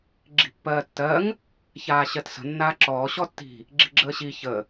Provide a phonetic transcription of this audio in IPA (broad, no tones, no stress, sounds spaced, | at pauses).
ɡ͡ǁ i̤ pː ɜː tː ɜ ŋ | ç aː ɕ ɜ t s ə̤ nː aː ǁ ɔː ɕ ɔ tː i̤ | ɡ͡ǁ i̤ ɡ͡ǁ əː ɕ i ç ə